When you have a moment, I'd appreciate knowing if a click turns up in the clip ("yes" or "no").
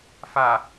no